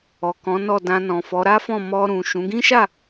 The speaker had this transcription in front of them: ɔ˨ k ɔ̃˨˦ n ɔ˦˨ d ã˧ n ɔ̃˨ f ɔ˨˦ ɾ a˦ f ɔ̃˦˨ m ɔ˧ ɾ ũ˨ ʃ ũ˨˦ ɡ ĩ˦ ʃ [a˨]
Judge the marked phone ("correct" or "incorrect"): incorrect